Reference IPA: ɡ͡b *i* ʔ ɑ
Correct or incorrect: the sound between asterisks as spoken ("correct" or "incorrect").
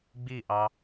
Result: correct